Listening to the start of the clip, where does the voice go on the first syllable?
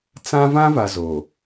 high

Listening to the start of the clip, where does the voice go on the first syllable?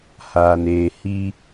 low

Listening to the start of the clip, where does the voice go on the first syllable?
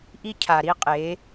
high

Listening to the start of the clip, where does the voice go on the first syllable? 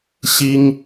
high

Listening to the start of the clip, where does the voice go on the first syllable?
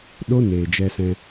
high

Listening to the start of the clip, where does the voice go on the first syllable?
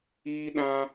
high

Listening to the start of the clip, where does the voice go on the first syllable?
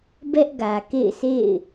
high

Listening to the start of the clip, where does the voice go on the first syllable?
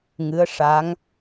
rising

